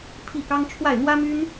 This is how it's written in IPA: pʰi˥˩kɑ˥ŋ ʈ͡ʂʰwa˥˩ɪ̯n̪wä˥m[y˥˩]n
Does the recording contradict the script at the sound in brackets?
yes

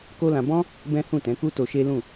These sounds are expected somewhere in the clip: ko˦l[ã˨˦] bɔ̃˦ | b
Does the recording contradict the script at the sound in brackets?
yes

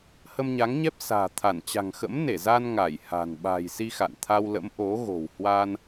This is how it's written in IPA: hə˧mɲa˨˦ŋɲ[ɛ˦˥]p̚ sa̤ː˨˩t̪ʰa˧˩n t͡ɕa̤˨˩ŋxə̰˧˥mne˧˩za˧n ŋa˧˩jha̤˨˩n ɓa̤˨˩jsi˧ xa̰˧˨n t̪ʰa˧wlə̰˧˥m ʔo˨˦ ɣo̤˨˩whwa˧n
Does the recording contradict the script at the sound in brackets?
no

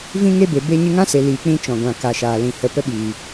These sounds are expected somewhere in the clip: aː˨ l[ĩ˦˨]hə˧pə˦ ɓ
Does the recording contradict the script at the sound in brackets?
yes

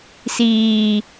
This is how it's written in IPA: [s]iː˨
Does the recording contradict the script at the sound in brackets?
no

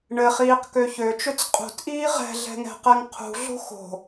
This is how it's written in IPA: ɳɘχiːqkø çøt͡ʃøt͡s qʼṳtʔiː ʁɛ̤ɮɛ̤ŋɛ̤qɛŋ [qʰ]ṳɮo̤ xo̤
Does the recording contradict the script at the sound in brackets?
no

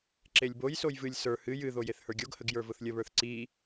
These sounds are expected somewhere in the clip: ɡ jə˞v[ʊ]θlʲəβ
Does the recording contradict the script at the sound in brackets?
no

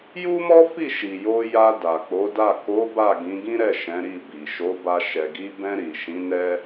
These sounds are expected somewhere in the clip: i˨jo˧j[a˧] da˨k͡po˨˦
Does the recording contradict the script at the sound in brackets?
no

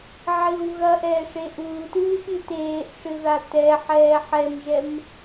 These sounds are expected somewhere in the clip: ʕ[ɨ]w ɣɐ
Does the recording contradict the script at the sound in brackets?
no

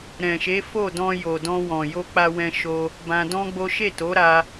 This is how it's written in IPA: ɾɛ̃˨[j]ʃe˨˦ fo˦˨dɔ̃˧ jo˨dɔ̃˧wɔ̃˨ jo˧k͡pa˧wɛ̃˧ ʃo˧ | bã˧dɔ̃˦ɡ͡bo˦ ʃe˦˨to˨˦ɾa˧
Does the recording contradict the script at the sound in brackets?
yes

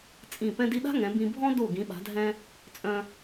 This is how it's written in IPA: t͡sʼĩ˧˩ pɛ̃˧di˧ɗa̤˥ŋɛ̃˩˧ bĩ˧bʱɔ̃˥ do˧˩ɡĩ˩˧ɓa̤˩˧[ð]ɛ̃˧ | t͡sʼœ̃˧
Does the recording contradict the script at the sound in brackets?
yes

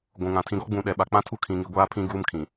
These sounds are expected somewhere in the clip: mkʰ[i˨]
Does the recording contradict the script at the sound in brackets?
yes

